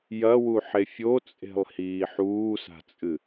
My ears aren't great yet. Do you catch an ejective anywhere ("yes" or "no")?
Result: yes